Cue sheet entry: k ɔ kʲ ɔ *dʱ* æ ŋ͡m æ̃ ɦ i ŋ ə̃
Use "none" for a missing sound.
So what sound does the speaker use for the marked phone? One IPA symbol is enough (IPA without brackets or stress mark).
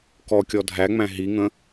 dʱ